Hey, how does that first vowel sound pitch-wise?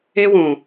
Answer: high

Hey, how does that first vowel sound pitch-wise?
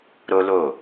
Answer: high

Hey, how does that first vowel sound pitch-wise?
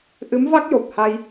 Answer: rising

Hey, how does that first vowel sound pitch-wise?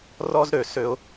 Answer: high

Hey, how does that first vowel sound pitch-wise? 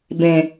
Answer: low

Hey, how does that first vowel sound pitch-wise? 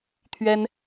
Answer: high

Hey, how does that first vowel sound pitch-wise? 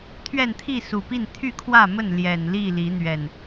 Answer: falling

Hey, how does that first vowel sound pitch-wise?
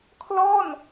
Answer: falling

